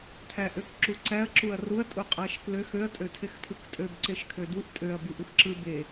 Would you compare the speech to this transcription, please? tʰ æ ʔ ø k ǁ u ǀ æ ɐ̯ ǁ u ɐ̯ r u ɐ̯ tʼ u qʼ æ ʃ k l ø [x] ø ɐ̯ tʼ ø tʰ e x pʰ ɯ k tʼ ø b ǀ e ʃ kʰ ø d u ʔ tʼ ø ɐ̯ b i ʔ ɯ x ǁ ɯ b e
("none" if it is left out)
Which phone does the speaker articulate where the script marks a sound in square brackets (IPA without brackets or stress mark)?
x